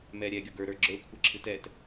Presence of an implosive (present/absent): absent